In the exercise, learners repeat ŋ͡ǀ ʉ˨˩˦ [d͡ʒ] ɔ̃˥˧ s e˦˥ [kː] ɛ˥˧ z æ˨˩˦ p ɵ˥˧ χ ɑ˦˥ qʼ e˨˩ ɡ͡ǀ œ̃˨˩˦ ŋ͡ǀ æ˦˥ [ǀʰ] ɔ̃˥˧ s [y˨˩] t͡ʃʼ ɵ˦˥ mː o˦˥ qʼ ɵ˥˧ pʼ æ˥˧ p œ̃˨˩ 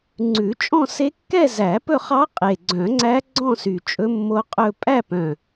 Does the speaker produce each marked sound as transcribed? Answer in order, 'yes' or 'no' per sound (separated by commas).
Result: no, yes, no, yes